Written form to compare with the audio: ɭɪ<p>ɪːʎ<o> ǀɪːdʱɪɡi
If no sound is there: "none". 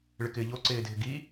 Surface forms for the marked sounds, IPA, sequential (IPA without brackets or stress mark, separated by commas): k, o